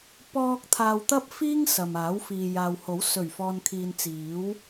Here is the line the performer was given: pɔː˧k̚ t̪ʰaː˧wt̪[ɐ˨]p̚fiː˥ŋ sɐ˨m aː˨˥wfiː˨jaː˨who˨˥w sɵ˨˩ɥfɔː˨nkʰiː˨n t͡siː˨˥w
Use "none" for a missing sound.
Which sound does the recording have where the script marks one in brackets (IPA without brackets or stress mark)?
ɐ˥